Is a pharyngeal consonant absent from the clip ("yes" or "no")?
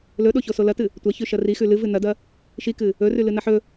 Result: no